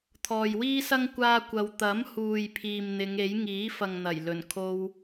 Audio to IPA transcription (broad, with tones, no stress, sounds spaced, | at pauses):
t̪ʰ ɔː˨ j w iː˥ s ɐ˥ ŋ kʷ aː˥ kʷ ɐ˧ w t̪ ɐ˨˥ m h uː˨ j pʰ iː˨ m n̪ ɪ˨˧ ŋ e˨˥ j ŋ iː˨˥ f ɐ˨ ŋ n̪ ɐ˨˩ j l ɵ˨˩ n kʰ o˧ w